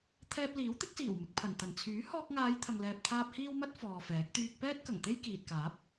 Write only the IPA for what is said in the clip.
t̪ʰɛː˧p̚liː˨˥wt̪ɪ˨˥k̚siː˨˩w mɪ˨k̚pʰɐ˨˩nt̪ɐ˨˩n t͡sʰyː˨˥hɔː˧k̚ŋaː˨˧j t̪ʰɐ˨ŋlɛː˨p̚t̪ʰaː˧p̚ hiː˥wmɐ˥t̚ fɔː˨fɛː˨˥k̚ t̪yː˧k̚pɛː˥t̚ kɐ˨˩ŋ t̪e˥jkiː˨t̚kaː˨˥p̚

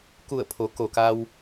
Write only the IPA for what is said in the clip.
ku˧˩ə̯pʰo˩˧ ko˩ka˧w

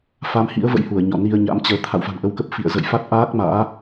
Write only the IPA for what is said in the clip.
fa˨˦mhḭ˧˥ə̯ və̰˧˥jhu˧˩ə̯ɲɔ̰˧˨ ni˧ə̯ɲa̰˧˥mt͡ɕəː˨˦ t̪ʰa̰˧˨wfa̤˨˩nʔə˧wkə˦˥p̚ fḭ˧˨ə̯ zə̰˧˨jfa˦˥t̚ʔaː˦˥k̚ ma̰ː˧˥

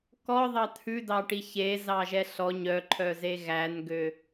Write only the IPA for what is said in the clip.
kɔðˤɑ t̪ʰʉdɑʈi çezɑʒɛ ɬɔ ɲœǃʰœze ɣænɡø

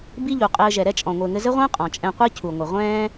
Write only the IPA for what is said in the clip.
bi˦ʎu˨qʼɘː˧ ʒɛ˨ɾɛ˦t͡ʃʼɔ̃˨ ŋʷɘː˨ŋɘ˧zɘ˦ʁʷɛ̃ː˦ qʼɔ̃˨ t͡ʃʼɛ̃˧qʷe˦ cʰu˨ŋʷɘ˨ ʁʷɛ̃ː˦

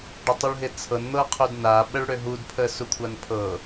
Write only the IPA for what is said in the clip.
ɖɪtˤuɭɦɪt͡sʰɤn n̪ɤqʰudnaɓəɭ ɽøɦudpʰə sukʷʰanpʰɤ

